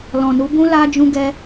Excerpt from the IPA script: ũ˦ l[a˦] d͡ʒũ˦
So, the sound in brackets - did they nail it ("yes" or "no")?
yes